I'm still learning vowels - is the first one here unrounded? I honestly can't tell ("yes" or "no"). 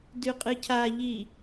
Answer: no